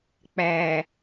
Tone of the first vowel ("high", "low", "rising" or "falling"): low